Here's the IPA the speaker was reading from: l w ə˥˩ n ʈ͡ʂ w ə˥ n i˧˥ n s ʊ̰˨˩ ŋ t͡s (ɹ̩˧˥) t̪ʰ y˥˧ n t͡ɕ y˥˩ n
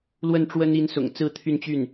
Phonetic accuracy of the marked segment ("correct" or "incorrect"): incorrect